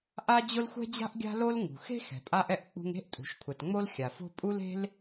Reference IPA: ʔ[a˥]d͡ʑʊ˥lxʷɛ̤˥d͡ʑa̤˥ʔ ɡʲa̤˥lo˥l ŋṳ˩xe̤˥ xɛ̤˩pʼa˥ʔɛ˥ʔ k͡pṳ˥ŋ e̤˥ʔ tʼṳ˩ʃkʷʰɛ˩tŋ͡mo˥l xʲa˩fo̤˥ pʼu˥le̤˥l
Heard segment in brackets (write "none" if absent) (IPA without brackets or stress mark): a˥